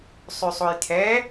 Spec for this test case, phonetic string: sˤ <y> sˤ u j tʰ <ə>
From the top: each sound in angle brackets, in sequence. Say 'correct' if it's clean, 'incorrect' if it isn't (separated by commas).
correct, incorrect